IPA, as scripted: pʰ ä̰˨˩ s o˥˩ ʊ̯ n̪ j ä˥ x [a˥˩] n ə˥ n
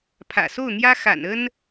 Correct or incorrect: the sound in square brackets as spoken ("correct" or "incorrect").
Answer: incorrect